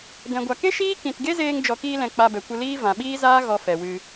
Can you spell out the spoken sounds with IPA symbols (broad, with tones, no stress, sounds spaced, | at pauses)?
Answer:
d ɛ̃˨ ɡʷ a˨ k e˦ ʃ iː˦ k ĩ˨ t ɡ e˦ z eː˧ ŋ d͡ʒ ɔ˨ k iː˧ l ɛ̃˨ k͡p a˧ b ɛ˨ kʷ ɨ˧ l iː˦ v ã˨ ɓ iː˦ z aː˦ ɣ ɔ˧ f ɛ˨ w ɨ˧